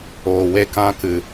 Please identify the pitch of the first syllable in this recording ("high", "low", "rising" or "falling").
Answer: low